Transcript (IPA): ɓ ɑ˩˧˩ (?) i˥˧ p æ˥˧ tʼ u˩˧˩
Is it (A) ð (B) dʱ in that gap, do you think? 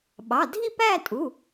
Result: B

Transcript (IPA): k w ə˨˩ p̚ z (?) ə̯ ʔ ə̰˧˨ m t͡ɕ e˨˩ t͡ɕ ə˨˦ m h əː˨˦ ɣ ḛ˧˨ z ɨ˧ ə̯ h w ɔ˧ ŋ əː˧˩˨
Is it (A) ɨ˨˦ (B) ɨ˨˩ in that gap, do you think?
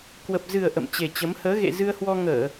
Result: B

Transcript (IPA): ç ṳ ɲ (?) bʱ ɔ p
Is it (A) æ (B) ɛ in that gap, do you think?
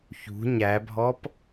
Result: A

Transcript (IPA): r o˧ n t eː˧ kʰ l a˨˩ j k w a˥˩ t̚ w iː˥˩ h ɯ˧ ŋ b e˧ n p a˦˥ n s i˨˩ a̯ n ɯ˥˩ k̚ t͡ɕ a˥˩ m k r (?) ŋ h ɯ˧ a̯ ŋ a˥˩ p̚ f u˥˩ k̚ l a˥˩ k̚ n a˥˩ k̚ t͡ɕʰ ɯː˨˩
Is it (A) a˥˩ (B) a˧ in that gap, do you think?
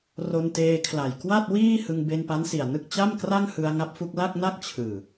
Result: A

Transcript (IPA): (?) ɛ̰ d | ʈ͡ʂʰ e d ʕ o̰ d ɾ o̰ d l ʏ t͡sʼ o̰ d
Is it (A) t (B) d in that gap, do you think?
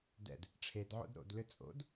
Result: B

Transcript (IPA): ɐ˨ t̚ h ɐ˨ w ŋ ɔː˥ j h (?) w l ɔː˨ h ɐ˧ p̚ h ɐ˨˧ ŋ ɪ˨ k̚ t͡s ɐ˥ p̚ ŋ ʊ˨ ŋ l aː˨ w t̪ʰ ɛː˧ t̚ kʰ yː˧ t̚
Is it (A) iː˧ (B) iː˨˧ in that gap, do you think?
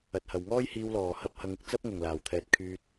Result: A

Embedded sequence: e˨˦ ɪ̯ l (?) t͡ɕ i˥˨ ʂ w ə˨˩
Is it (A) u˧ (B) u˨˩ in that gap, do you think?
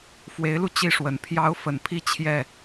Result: A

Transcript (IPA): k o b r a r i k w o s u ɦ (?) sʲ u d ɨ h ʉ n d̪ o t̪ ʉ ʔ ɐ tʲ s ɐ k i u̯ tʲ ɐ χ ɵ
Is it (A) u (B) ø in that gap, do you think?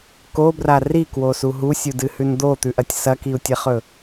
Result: A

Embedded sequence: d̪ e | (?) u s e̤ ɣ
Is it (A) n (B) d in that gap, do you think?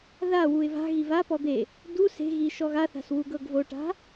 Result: B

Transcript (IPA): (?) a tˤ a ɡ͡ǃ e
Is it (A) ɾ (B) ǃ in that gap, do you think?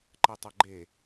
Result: B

